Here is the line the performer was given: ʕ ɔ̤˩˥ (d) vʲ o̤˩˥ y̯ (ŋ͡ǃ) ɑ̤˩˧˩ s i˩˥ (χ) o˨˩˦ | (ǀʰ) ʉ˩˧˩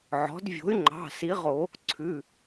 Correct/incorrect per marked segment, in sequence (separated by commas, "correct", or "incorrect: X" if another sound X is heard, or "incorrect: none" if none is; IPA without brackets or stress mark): correct, correct, incorrect: ʁ, correct